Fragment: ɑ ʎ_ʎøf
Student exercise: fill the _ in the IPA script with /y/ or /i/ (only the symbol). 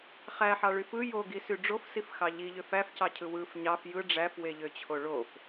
i